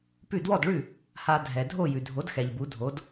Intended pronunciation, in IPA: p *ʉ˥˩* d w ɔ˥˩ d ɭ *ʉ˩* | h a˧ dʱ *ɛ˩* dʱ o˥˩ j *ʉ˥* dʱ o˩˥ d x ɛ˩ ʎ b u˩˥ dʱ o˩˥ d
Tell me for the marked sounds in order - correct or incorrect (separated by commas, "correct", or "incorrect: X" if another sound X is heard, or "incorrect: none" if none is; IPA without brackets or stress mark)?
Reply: correct, incorrect: ʉ˥˩, correct, incorrect: ʉ˩